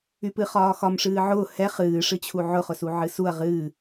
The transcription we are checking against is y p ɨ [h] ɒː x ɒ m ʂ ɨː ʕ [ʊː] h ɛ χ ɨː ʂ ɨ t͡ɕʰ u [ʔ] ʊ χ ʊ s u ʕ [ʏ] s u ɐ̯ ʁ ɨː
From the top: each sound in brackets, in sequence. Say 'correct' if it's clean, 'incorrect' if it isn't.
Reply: incorrect: χ, correct, incorrect: ʕ, incorrect: ɨ

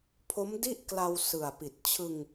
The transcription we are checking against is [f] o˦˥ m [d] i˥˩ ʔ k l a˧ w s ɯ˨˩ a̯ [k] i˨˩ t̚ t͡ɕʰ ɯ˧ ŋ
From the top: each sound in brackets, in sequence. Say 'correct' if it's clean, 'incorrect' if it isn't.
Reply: incorrect: pʰ, correct, incorrect: p

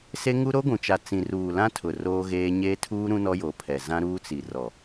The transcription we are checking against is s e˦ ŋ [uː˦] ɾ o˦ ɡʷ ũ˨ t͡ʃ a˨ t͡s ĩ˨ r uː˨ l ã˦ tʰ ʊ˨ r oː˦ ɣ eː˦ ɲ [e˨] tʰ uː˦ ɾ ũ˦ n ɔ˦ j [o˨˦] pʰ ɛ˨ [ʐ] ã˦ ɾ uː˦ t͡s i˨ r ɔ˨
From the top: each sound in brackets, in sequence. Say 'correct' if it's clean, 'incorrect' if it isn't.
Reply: incorrect: u˦, incorrect: e˦, correct, incorrect: z

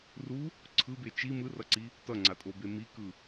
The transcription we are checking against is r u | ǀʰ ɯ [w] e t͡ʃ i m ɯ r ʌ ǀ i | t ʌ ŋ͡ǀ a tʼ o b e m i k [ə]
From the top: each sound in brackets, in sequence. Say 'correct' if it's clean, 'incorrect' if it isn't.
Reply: incorrect: b, incorrect: ɯ

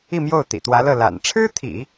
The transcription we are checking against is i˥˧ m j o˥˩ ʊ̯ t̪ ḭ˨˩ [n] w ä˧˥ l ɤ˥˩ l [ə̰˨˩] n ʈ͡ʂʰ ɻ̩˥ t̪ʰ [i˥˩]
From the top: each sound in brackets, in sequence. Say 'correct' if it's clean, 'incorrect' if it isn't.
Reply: incorrect: t̪, incorrect: a̰˨˩, incorrect: ḭ˨˩˦

